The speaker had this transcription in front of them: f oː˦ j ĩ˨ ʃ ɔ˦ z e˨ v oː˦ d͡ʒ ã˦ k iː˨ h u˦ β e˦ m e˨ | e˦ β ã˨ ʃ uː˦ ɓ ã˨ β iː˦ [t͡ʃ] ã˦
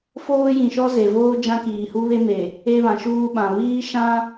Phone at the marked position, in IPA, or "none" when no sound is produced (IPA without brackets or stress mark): ʃ